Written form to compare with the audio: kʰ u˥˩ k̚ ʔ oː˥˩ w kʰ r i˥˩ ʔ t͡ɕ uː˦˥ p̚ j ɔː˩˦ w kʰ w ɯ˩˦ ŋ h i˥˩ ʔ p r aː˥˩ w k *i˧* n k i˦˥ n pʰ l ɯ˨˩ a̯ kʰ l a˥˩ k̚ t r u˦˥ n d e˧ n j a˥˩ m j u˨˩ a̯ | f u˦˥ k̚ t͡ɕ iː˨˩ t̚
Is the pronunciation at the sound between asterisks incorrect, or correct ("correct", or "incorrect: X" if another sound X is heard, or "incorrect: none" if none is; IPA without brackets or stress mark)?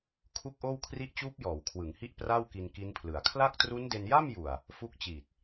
correct